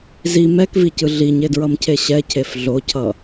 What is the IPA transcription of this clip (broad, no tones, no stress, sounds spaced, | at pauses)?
z i m ɛ k v i c ɯ ɮ i ɲ e d ɹ ʌ m cʰ e ɕ ɛ cʰ e f ɮ o cʰ ʌ